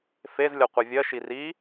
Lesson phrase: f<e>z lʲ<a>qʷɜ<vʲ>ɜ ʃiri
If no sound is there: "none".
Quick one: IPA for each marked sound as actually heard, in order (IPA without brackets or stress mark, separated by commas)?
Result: e, ʌ, vʲ